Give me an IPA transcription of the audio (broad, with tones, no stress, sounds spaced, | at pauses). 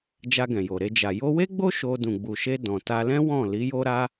d͡ʒ a˧ ɡ ɛ̃˨ j o˨ ɾ e˧ d͡ʒ a˨ j o˧ w e˦ ɡ͡b o˦ ʃ o˧ d ũ˨ ɡ͡b u˨ ʃ e˧ d ɔ̃˨ t a˧ l ɛ̃˦ w ɔ̃˦˨ l i˨˦ j o˦ ɾ a˦